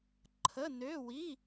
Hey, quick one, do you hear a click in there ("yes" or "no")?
yes